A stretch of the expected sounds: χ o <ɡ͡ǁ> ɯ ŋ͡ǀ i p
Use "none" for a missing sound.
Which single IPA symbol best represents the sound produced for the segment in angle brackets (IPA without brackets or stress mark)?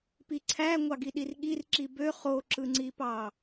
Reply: ǁ